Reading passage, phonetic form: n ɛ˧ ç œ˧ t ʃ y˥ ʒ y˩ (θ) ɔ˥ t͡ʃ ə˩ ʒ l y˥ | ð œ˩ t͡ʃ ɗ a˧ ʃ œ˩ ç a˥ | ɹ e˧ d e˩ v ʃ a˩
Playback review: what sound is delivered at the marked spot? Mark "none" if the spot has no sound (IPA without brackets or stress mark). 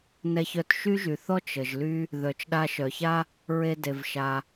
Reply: θ